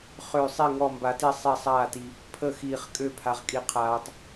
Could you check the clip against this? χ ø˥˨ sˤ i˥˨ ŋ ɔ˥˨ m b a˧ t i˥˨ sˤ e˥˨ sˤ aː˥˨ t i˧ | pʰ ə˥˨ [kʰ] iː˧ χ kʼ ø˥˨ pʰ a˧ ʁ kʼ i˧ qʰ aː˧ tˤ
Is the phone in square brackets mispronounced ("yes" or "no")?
yes